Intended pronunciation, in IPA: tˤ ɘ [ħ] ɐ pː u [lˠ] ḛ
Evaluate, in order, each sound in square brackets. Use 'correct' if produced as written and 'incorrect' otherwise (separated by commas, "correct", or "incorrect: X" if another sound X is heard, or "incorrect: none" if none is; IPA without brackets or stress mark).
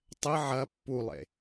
incorrect: ʕ, correct